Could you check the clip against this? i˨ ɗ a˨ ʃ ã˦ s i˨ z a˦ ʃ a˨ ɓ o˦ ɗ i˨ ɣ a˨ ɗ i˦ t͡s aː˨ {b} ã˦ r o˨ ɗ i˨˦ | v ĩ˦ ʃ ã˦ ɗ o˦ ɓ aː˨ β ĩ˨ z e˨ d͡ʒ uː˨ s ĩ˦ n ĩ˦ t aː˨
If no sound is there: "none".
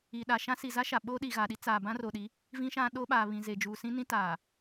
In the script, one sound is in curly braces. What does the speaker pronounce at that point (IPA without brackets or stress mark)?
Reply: b